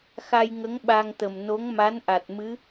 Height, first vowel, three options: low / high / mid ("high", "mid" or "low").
low